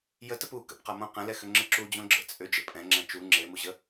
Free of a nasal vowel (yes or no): no